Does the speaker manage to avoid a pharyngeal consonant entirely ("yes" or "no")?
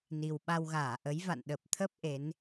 yes